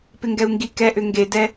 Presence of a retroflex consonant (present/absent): absent